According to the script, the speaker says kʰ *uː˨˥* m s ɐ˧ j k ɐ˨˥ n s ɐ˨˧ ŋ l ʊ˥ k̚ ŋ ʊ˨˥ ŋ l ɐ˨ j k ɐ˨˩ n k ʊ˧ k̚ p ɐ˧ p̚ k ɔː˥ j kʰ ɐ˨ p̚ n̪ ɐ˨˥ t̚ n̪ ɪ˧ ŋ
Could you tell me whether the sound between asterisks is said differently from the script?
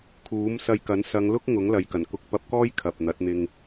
no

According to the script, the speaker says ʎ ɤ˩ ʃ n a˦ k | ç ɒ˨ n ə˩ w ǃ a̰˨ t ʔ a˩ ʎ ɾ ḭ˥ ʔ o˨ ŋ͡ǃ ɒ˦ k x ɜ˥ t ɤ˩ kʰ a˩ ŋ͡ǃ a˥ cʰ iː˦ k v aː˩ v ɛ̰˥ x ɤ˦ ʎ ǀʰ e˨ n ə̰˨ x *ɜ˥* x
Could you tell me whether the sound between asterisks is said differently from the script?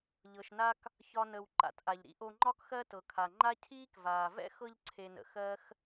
no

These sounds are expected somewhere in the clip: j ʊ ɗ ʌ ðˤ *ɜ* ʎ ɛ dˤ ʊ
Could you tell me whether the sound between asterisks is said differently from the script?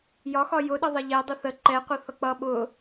no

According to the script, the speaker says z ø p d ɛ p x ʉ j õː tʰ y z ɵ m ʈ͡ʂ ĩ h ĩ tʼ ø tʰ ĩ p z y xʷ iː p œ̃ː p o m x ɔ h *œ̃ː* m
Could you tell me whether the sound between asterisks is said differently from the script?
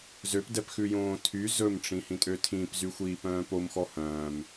no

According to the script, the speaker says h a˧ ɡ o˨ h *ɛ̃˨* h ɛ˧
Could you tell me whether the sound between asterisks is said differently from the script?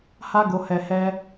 yes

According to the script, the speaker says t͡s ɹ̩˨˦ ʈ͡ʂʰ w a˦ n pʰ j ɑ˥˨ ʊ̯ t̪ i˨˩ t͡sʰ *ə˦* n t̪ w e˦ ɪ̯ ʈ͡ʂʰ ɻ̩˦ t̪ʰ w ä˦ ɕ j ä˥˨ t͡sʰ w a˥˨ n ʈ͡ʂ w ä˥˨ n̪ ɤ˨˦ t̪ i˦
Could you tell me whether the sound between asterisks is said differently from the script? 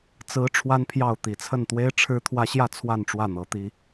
yes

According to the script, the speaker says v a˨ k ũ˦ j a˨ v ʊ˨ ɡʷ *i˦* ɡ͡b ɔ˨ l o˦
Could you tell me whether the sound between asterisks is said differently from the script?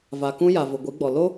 yes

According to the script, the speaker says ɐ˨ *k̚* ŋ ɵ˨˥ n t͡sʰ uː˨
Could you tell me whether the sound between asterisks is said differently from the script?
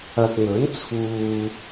no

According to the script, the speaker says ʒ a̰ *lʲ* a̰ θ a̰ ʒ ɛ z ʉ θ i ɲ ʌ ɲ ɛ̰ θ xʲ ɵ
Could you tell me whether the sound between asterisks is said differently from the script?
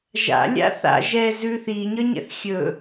no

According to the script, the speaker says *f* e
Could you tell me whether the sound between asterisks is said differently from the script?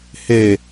yes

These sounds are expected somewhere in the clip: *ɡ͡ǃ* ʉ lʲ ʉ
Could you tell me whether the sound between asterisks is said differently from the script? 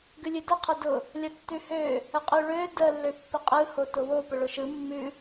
yes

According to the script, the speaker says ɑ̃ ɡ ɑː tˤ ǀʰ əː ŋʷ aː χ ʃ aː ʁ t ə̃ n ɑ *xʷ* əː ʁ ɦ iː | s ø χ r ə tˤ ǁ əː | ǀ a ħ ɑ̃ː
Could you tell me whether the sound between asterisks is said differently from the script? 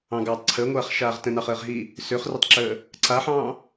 yes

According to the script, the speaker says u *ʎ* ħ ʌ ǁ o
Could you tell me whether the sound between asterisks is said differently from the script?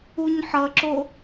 yes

